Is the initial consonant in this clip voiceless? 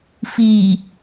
yes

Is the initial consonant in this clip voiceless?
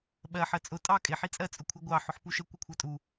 no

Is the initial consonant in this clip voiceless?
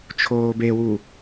yes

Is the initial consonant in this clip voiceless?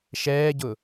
yes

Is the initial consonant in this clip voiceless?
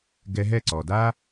no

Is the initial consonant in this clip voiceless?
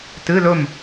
yes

